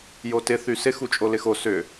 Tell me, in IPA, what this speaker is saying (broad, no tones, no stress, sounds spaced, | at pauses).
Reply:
j o t ɪ θ y s ɪ x u t͡ʃʼ o l ɪ x o s ʏ